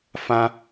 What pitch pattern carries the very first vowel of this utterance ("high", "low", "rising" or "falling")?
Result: high